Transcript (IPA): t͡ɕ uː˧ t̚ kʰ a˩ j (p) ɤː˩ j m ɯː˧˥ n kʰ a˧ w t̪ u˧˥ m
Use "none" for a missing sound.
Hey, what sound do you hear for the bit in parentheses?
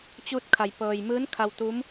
p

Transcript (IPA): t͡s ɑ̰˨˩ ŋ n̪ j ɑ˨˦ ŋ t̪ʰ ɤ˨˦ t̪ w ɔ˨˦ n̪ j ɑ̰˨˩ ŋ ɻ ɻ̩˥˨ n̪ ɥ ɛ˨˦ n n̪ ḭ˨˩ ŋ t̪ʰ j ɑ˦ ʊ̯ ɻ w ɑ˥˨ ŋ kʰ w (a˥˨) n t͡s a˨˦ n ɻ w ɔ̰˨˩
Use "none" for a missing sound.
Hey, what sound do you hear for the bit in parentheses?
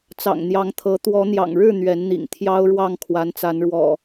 a˨˦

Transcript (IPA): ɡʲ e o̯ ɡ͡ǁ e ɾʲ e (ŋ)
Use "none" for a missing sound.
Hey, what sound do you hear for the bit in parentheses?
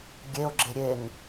ŋ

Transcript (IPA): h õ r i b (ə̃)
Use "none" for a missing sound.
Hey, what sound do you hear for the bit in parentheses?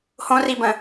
ə̃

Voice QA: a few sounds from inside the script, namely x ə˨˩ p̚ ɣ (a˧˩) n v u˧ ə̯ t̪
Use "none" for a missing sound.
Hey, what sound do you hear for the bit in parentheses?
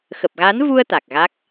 a˨˦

